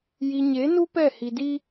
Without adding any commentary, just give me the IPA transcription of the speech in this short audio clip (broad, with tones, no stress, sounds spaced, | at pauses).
j i˨ ɲ e˨˦ n u˦ p ɛ˦˨ h i˨ d i˦